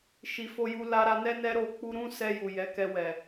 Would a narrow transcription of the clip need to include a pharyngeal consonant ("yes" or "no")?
no